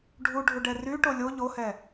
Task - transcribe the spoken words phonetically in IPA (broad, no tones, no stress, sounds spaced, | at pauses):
ɖʱ u ɖʱ u ɖ ɛ r y ʈ o lʲ o ʎ o h ɛ